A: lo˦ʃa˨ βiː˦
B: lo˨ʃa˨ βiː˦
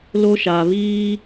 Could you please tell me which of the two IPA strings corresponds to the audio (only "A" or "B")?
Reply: A